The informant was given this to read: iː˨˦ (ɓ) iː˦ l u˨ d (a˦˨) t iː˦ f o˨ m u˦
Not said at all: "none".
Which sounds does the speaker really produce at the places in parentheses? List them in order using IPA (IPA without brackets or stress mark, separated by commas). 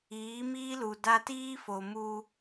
m, a˦